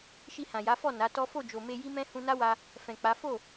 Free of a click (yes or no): yes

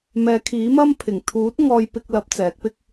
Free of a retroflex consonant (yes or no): yes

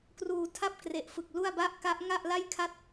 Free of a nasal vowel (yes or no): yes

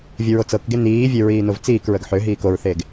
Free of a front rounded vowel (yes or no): no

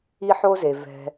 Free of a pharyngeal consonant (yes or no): no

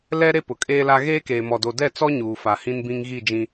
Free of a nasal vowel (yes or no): no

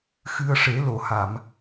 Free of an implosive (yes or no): yes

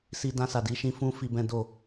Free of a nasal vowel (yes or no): no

